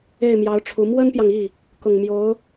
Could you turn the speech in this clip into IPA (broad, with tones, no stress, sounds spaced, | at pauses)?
e˥˩ ɪ̯ m j ɑ˧˥ ʊ̯ ʈ͡ʂʰ u˧˥ m w ə˥ n p j ɑ˨ ŋ i˥˩ | k ʊ˨˩ ŋ m j o˧˥ ʊ̯